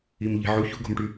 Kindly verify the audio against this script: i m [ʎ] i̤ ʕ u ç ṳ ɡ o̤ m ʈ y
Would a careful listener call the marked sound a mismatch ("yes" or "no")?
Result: no